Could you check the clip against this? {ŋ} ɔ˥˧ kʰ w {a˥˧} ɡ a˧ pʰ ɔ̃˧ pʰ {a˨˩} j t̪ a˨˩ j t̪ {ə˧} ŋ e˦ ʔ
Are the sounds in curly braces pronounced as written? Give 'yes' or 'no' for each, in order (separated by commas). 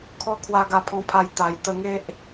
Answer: no, no, no, yes